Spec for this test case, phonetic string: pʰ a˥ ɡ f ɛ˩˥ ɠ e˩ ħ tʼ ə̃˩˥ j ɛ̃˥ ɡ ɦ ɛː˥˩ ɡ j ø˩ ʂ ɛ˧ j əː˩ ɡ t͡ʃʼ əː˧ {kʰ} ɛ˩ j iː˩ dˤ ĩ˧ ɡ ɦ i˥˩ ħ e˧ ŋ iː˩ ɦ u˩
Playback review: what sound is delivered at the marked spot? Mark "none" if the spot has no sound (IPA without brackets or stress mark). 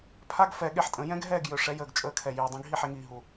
kʰ